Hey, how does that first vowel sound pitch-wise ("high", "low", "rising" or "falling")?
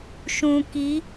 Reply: low